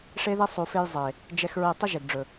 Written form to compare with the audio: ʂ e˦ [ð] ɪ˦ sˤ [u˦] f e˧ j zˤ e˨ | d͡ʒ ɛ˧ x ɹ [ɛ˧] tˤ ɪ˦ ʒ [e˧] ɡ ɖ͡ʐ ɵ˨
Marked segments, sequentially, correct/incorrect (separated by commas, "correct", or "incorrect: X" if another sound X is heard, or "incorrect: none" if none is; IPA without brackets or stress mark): correct, incorrect: u˨, incorrect: e˧, incorrect: e˨